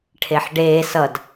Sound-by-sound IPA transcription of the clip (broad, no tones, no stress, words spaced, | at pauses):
ʈʰeħɖeː sʌd